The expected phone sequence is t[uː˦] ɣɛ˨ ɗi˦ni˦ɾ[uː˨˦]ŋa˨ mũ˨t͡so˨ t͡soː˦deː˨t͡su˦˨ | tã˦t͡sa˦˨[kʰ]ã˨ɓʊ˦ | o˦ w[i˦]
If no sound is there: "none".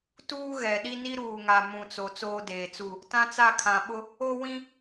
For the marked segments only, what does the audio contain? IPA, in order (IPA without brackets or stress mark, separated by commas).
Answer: uː˦, uː˨, kʰ, ĩ˦